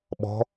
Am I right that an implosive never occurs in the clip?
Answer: no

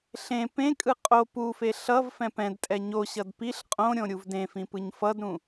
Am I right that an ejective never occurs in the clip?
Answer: no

